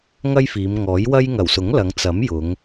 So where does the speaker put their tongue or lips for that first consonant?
velum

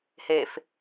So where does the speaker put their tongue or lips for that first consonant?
throat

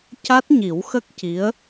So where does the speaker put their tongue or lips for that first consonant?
palate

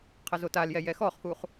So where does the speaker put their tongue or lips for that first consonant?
uvula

